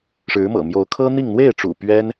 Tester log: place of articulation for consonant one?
retroflex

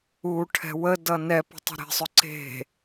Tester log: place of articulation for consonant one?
retroflex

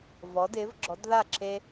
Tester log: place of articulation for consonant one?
labial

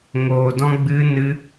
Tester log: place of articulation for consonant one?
velar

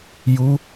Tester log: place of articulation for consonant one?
palatal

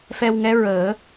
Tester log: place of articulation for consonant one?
labial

